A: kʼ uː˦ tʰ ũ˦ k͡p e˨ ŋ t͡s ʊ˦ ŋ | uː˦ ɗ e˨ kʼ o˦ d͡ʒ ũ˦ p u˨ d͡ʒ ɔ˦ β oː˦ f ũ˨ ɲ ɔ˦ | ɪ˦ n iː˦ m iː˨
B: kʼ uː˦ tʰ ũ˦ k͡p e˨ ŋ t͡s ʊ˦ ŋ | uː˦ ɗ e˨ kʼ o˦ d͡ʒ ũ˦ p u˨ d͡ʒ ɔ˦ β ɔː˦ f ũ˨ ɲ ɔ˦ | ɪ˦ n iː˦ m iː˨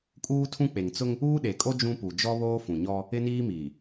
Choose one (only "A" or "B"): A